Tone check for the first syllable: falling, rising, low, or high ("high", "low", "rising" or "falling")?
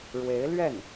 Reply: rising